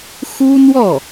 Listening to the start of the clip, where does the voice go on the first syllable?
high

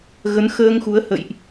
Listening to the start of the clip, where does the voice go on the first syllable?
rising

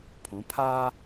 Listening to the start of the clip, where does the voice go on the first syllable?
rising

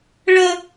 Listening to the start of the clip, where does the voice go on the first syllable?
high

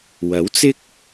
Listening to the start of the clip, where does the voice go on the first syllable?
rising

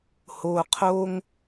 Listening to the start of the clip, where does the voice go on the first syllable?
low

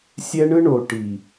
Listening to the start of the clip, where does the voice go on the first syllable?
high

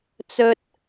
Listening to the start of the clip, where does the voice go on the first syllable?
high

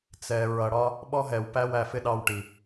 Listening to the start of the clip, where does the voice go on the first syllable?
low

